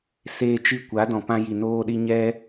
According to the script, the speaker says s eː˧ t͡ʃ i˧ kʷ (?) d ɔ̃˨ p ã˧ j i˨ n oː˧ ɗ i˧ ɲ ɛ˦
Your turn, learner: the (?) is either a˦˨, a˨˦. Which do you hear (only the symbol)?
a˨˦